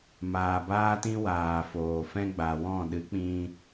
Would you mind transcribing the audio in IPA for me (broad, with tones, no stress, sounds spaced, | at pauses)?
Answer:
m aː˨ b aː˦ t ĩ˦ w aː˨ f oː˨ f ɛ̃˦ ɡ͡b a˨ w ɔ̃˦˨ ɗ ɨ˨˦ k͡p ĩ˧